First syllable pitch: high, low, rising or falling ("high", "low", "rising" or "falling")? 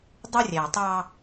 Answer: high